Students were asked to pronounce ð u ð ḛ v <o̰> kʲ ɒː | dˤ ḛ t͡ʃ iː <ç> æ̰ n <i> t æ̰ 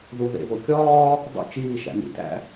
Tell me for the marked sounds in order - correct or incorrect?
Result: incorrect, incorrect, incorrect

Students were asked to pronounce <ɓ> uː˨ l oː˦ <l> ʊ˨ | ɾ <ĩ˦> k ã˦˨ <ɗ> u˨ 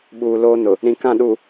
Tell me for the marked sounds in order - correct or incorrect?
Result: correct, incorrect, incorrect, correct

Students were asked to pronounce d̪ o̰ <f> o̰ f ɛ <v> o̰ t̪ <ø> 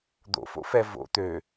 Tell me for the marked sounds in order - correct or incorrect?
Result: correct, correct, correct

